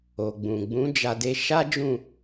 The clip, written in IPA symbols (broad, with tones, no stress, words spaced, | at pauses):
o˨ɡ͡bũ˨ ɡ͡bũ˨˦d͡ʒa˧de˧ ʃa˦ d͡ʒũ˦˨